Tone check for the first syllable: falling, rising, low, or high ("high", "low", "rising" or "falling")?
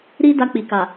high